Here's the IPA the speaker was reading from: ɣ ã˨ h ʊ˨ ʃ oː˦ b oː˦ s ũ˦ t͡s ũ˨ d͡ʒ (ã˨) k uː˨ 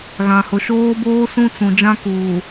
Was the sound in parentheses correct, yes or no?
no